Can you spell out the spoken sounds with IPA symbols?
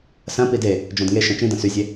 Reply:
s ɐ̃ p i d e | d͡ʒ ɔ̃ d ŋ e ʃ ɐ̃ t͡ʃ ĩ d ɐ̃ s y zʲ e

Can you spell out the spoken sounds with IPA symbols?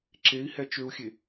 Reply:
ǁ e i̯ h ɛ t͡ʃ ø u̯ xʲ e

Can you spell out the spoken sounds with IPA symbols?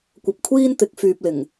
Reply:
kʷ ɐ˨ p̚ kʷʰ iː˥ n t̪ ɪ˨˥ k̚ f yː˨ p̚ l ɪ˨˩ ŋ

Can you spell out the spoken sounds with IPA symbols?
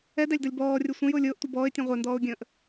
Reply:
ɛ d æ lʲ d ɔ lʲ b ɔː rʲ ʊ sʷ ə̃ j ʊː lʲ ʊː ʔ tʷ ə b ɔː ɪ̯ tʲ ɛ̃ ʁʷ ɛ n d ɔː ʊ̯ ɡʲ ə̃ː ʔ

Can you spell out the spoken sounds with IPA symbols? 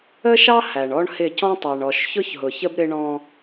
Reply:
ə˦ ʃ ɑ˦ h æ˨ ɳ ɔ˦ ɳ h ɪ˦˨ c ɔ̃˦ tˤ æ˨ ɳ ɔ˨ ʃ ç ʊ˦ ç ɦ ʊ˨ ç ə˦ b ɾ ɪ˦ ɳ ɔ̃˦

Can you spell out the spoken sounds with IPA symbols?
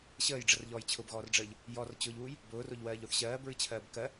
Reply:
ɕ əː j ɖ͡ʐ ə r ʎ ɔː j t͡ɕʰ ʊ b ɣ ɔː r ɖ͡ʐ əː ʎ | j ɔ r t͡ɕ ʊː ʎ uː j | b ʊː r o ʎ w ɜː ʎ o θ ɕ ɜː b ɹ ɨ t͡ɕʰ ɜː b k ɜ

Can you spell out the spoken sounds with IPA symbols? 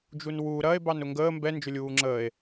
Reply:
d͡ʒ u n w u ɾ ɐ e̯ b ɑ n ʊ ŋ ɡ əː m b ɛ n d͡ʒ ʊ lʲ uː ŋ͡ǁ əː e̯

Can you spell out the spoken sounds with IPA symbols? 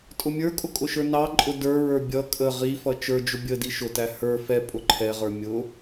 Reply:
tʼ ʊ mʲ ə˞ kʼ ʊ kʼ ʊ ʃ ə˞ n ɑ ǃʼ ʊ d ə˞ ɹ ə˞ bʲ ʌ kʼ ə ʁ i f ʌ t͡ʃ ə˞ d͡ʒ ʊ bʲ ə d i ʃ ʊ t æ h ə˞ f ɛ pʼ ʊ ǃʰ ɛ ʁ ə˞ mʲ ʊ

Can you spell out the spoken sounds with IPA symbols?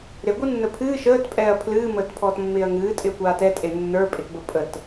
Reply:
ɾ e ɡʷ ɨ nː ə pʰ ɨː ʃ əː t pʼ ɛː ɐ̯ pʰ l ɨː m əː t pʰ ɔː t mː ɪː ɐ̯ ŋ ɨː tʼ ɪ ɐ̯ kʷ aː t ɛ tʼ e nː ə˞ pʼ ɪ t b ə pʼ ə t

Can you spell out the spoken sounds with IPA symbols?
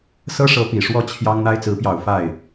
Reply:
s ɤ˥ ʂ ɤ˧˥ p i˨˩ ʂ w ɔ˥˩ t͡ɕʰ j ɑ˥ ŋ n̪ a˥ ɪ̯ t͡s ɹ̩˧˥ p j ɑ˨˩ ʊ̯ f a˥˩ ɪ̯

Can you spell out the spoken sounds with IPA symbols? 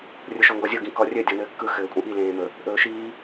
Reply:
rʲ ʊ ʃ ɔ ŋ ɡ ɔ zʲ ʊ ɡ ĩ k ɔ rʲ ɘ dʲ ɔ n ɘː kː ɯ x ɘː kʷʼ ĩ ʔ i l ẽː m ɵ | ʔ ɵː ʃ iː

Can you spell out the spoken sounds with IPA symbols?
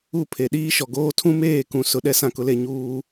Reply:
u˦˨ pʰ e˨ ɗ iː˦ ʃ ɔ˨ ɡ oː˦ tʰ ũ˦ m eː˦˨ k ũ˨ s ʊ˨ ɗ ɛ˦ s ã˦˨ k ʊ˨˦ l e˦ ɲ uː˦

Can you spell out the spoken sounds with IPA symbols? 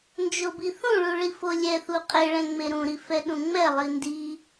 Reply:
n d͡ʒ o b i θ ũ ɭ u ɭ i f o lʲ ɛ θ u qʼ e ɭ ɛ̃ ŋ͡m e ɾ ũ ɾ i f ɛ ɗ ũ ŋ͡m ɛ lˠ i n d i

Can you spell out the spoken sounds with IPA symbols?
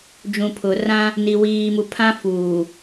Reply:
d͡ʒ ũ˨ pʰ ʊ˨ r ã˦ | n i˨ w iː˨ m u˨ pʰ ã˦ f uː˨

